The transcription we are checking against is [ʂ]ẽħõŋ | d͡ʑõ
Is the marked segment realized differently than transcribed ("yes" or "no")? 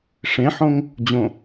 no